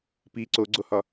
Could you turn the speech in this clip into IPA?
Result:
p i ǀ o ɡ͡ǀ o h ɒ

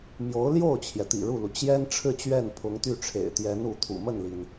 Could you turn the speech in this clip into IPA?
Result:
m j o˧˥ ʊ̯ l j o˥˩ ʊ̯ t͡ɕʰ j ɛ˩ t̪ ḭ˨˩ ɻ u˥˩ l u˩ t͡ɕ j ɛ˥ n ʈ͡ʂʰ ɻ̩˥˧ t͡ɕ ɥ ɛ˥˩ n pʰ ʊ˧˥ ŋ t̪ y˥˩ ʈ͡ʂʰ ḛ˨˩ ɪ̯ t̪ j ɛ˧˥ n u˧˥ t̪ʰ ṵ˨˩ m ə˥˩ n l i˩ n

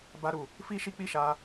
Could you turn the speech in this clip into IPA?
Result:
b a˧ ɾ u˨ | f i˦ ʃ i˦ k͡p i˦˨ ʃ a˧

